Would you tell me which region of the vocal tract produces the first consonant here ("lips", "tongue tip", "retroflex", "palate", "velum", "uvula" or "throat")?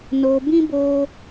tongue tip